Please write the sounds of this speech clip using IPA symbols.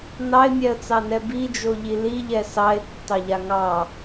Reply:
n ɑ ɪ̯ mʲ ɛ ə̯ t͡s ɑ n ɛ b i d͡ʒ o ʎ i l i ʎ ɛ s ɑ ɪ̯ tː ɑ ʎ a ŋ ɑ

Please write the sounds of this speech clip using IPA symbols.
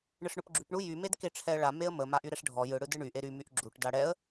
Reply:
ɳ ɯ ʂ ɳ ʊ p ɡ͡ǁ y p ɳ u j y m e d k e ʈ͡ʂʰ ɛ ə̯ ɭ a m e ə̯ m ə m a ʔ y ɾ ɛ ʂ ɖʱ ɔ j ɯ ɽ ɯ d ɯ ɳ y ʔ e ɾ y m y ʔ ɡ͡ǁ u ʈ d a ɽ ɛ ə̯

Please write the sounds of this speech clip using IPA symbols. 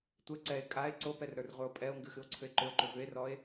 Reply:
tʷ ɛ ǀ ɛ e̯ kʼ a e̯ ǀ o p ɛ r ɾ ə˞ r ʁʷ ə˞ o̯ pʼ ɛ o̯ ŋ ɡ ɨ x ɨ o̯ ǀʰ ʏ e̯ ǃ ʏ o̯ ǃ ʏ v ʏ e̯ r ɔ e̯

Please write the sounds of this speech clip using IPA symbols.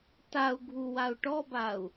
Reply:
t a u̯ ɡʱ u w a u̯ ʈ ɔ b a u̯

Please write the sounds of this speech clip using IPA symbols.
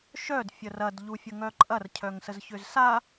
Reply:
ʃ œ d fʲ ə r ɐ d ʎ u fʲ ə ŋ œ ǃʼ ɐ r cʰ œ ŋ s ə z ç ʏ z s a

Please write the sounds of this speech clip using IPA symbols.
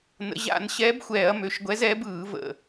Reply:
n ə̰˩˧ ʑ a̰˧˩˧ n ɕ ɛː˨˥ b xʷ ɛː˧˩˧ ɐ̯ m ø˩˧ ʃ ɡʷ ɛ˨˥ z ɛː˨˥ b ɯː˧˩˧ v ə̰˨˩

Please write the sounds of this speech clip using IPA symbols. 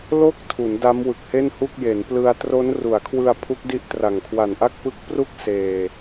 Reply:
l o˥˩ k̚ tʰ u˩˦ n d a˦˥ m w ɯ˨˩ k̚ h e˥˩ n h u˥˩ k̚ j e˩˦ n p l ɯ˧ a̯ t r o˦˥ n r u˩˦ a̯ kʰ w ɯ˧ a̯ pʰ u˦˥ k̚ d i˦˥ ʔ t r a˨˩ ŋ kʰ w a˨˩ n ʔ a˥˩ k̚ p ɯ˦˥ k̚ p r u˥˩ k̚ s eː˧

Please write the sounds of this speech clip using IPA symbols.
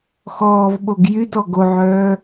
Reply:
x ɔː v ɓ o ɡ j y d ɔ ɡ o ʕ œː

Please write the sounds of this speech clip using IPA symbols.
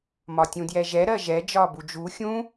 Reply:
m ɒ tʲ ũ d j ɛ ʒ ɛ ɾ ɜ ʒ ɛ d͡ʒ ɒː b u d͡ʒ u xʲ ũ

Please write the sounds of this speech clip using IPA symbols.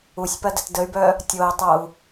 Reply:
u sʲ p ɐ d ə t d ə y̯ b œ | tʲ o i̯ tˤ o u̯

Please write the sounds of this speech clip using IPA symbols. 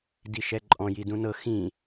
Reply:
d i ʃ ɛ ǃʼ ɔ̃ j i d ũ n ɤ x ĩ

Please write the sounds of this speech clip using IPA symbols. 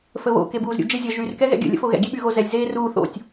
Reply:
f ə β o̰ k e b uː z ɾʲ ṵ d͡ʒ e zʲ ʌ ʒ y r k ɛ ɣ ɛ̰ ɡʲ ə̰ lʲ ə̰ f o ɣ ɛ̰ ɡʲ e ɓ y ɣ o z ɛ lʲ z eː r uː θ o̰ tʲ

